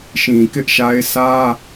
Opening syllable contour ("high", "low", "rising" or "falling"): low